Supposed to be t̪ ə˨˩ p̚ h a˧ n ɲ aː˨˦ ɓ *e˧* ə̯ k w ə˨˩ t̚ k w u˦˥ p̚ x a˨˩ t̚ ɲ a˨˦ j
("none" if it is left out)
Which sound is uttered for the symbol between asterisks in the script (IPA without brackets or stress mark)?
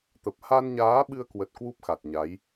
ɨ˧